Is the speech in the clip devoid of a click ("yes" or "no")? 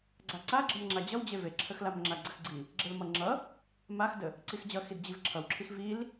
no